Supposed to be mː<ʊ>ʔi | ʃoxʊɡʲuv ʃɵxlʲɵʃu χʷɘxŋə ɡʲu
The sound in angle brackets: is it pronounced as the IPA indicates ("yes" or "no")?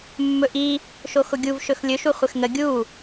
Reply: no